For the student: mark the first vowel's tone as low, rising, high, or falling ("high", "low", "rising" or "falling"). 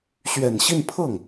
low